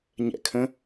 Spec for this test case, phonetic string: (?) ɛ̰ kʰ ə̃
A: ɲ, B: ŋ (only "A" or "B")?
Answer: A